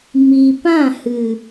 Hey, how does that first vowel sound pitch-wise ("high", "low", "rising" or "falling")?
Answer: low